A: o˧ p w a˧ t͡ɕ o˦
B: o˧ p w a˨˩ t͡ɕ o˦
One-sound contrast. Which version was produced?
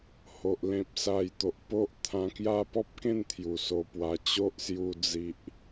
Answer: A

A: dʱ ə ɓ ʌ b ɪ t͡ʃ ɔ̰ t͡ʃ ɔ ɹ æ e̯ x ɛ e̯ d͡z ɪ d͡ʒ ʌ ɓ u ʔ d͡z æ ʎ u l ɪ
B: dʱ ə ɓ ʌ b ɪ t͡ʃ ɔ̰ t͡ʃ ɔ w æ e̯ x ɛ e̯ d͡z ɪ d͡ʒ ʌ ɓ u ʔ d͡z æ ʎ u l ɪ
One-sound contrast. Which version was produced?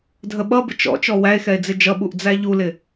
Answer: B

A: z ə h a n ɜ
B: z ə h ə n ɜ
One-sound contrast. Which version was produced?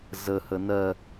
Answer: B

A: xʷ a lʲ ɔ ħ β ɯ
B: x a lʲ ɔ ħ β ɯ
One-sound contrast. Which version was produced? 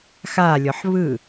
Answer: B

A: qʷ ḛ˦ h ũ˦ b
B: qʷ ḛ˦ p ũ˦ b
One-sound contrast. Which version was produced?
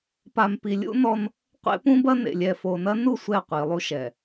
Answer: B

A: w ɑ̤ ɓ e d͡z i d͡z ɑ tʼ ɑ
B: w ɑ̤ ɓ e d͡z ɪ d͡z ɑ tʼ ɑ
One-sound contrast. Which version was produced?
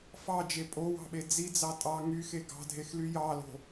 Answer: A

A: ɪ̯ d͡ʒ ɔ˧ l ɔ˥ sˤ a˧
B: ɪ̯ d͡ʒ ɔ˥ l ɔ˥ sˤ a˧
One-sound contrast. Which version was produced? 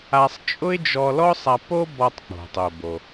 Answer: A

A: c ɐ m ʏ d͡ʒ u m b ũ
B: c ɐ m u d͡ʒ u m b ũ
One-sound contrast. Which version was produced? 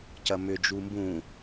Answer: A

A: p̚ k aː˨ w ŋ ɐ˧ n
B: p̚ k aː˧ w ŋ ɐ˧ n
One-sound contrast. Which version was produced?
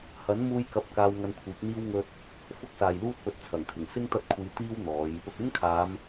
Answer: B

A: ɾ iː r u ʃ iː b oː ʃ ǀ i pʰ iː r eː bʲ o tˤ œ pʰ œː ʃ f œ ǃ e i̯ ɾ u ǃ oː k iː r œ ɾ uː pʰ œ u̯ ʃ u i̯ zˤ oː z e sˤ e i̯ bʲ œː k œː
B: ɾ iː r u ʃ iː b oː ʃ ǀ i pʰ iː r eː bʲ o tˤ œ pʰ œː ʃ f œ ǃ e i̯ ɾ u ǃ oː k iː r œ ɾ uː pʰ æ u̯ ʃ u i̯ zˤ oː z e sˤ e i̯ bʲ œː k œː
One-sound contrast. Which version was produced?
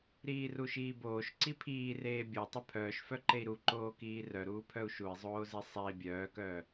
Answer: A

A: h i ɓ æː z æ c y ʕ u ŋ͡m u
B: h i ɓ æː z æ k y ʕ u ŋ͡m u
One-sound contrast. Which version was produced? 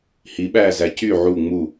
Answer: A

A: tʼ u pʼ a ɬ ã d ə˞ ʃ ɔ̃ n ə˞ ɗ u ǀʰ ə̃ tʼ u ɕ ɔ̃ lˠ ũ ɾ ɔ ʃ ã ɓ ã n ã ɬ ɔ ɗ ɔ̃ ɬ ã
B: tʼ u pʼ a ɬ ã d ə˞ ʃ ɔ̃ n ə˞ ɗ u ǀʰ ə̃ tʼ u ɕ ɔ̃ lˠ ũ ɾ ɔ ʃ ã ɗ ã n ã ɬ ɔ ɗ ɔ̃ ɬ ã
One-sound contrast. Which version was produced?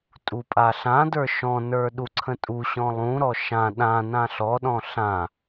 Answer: B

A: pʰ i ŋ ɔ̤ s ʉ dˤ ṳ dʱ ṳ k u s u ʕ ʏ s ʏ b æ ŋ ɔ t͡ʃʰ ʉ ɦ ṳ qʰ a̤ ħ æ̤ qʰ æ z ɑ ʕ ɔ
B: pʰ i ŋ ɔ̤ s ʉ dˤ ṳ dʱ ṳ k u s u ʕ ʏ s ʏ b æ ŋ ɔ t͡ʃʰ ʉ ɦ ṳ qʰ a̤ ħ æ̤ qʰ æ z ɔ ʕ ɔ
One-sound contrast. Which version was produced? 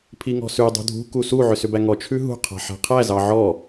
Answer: A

